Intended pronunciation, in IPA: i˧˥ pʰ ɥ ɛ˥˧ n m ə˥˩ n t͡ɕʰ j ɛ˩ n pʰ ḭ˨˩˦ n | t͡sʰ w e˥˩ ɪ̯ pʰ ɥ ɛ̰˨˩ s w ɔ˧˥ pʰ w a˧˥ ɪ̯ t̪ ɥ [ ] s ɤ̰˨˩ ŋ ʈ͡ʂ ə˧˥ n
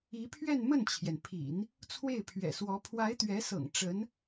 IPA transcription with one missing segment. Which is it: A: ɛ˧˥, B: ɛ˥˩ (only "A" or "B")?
A